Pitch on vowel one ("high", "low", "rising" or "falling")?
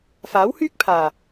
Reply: rising